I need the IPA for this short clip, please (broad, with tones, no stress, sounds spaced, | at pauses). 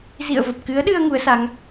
z ḭ˧˨ ə̯ v ə˨˩ p̚ k ɨ˨˦ ə̯ ɗ ɨ˧ ə̯ ŋ u˨˦ ə̯ s a˨˦ ŋ